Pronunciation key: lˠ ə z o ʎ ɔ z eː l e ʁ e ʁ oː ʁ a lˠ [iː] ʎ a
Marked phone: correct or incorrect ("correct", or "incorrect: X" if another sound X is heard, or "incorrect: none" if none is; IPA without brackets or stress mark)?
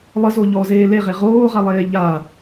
incorrect: eː